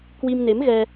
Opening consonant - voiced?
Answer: no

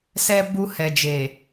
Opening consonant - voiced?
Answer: no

